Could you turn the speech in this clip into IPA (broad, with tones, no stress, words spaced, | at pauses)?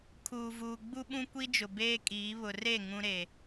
kʰuː˨vuː˨ ɡ͡bu˦ɓũ˦kʷi˦d͡ʒʊ˨ beː˦kʼiː˨˦ βʊ˨re˦˨ ŋũ˦ɾe˨